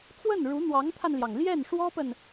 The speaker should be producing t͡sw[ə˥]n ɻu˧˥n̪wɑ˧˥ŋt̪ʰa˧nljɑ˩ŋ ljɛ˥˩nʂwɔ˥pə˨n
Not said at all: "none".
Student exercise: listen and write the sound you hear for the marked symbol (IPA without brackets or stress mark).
ə˥˩